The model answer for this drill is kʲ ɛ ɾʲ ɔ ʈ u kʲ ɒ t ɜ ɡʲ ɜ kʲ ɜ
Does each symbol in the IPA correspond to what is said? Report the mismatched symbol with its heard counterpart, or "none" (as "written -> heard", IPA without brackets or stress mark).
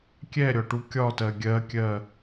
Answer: none